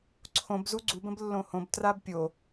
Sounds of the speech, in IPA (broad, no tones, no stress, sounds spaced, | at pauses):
ǀʰ õ b z u ɡ͡ǀ u b ə̃ b lː õ h õ b t r a b pʲ o